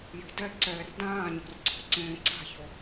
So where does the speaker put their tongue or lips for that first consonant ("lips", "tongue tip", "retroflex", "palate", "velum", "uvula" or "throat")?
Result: palate